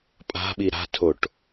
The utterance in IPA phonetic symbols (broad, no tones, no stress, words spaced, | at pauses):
pʼa̤ɓi ɾa̤tʰoʈ